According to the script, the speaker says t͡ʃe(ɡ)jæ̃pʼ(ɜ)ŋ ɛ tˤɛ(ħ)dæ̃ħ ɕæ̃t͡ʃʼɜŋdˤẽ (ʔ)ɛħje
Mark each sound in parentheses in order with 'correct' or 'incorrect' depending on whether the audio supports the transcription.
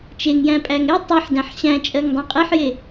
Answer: incorrect: ŋ, incorrect: æ, correct, incorrect: qʼ

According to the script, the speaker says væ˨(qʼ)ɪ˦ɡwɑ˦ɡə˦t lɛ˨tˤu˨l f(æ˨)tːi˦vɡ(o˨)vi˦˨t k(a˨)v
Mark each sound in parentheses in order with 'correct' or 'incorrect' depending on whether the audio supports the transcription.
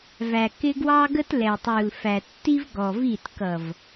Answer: incorrect: k, correct, incorrect: ɔ˨, incorrect: ʌ˨

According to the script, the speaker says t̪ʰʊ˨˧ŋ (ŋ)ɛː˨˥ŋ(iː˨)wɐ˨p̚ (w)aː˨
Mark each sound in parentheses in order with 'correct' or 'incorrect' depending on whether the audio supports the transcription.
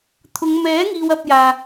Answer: incorrect: m, correct, incorrect: j

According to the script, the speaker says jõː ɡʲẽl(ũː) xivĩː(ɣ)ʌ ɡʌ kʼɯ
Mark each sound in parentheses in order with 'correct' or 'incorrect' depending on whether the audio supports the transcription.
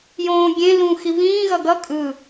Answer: correct, correct

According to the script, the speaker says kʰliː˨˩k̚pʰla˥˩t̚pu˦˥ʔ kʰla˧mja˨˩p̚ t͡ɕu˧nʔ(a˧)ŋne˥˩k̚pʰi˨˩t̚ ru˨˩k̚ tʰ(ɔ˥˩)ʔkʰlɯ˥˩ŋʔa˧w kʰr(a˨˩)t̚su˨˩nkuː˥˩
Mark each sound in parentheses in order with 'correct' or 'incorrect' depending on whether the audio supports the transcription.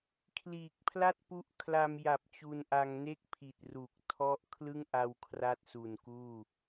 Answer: correct, incorrect: ɔ˦˥, incorrect: a˥˩

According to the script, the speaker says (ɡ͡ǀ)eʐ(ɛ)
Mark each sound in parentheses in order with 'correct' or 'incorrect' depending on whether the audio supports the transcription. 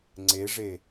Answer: incorrect: ŋ͡ǀ, incorrect: e

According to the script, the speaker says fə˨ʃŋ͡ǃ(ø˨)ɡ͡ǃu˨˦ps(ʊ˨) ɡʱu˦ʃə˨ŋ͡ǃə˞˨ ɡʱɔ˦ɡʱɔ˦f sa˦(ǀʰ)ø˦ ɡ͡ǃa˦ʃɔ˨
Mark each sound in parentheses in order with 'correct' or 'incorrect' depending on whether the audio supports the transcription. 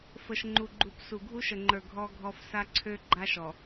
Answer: incorrect: u˨, incorrect: u˨, correct

